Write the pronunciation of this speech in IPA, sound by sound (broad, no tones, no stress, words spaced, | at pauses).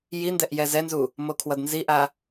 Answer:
jindɛʔ jɛzɛnzu | mokʰwʌdnziʔa